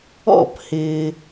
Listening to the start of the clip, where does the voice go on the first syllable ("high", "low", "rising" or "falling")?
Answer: falling